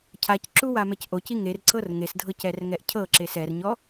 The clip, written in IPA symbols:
cʰacǁu wamɛcʔoci ŋerǀɤr ŋesdʱɤc ɛrŋɛʔcʰɤǁes ɛrɲɔ

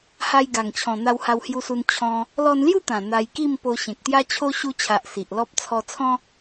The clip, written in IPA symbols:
ha˧jɡa˨˩ŋt͡ɕʰɔ̃˨˩ n̪a˧wha˧whju˧su˧n t͡ɕʰɔ̃˧ | lɔ˧nlju˥˧t̪ã˨˩ n̪a˧jki˥˧m po˧ ɕẽ˨k̚t̪ja˦t͡ɕʰo˦ ɕu˧t͡ɕʰa˨ʔ si˨ʔlɔ˦p̚ t͡sʰɔ˧t͡sʰɔ̃˦

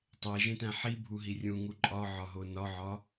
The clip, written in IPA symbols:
tˤeʒẽtæ̃ ħibʱuɦi rʲũŋu ǃʼɒʕɒɦo nɒʕɒ

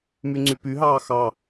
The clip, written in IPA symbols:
myŋ͡ǀypyɦɑː xɑ

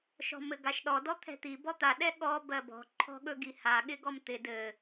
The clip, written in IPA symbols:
ʃɔ̤mɘɡaʃɗɔ dɔt̪ʰɛ̤t̪i bɔt̪a ɗɛɠɔ bɜbɔ̤ ǃʰɔ̤ɠɵɡiha ɠɪɡɔmt̪ɪ dɘ

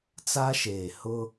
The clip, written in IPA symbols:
t͡sa˦ʃeː˨ hʊ˦

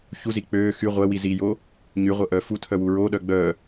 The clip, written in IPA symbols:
çuzi k͡pøː xy ʁʷɛwi zijo | ɲyʁʷə ʔœfutʰœ wuɹoɗœ ɡ͡bœ

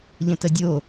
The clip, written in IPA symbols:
ʎə̃tədʲo

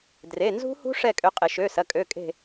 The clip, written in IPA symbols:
dre˩˧˩ nzṳ˦˥hṳ˦˥ ʂɛ˦˨kʼø˨˦qʼɪ˧˩˧ ʃø˩˧˩ sɐ˩˧˩kʼø˩˧˩kʼe̤˦˨

